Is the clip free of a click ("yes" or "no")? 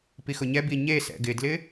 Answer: yes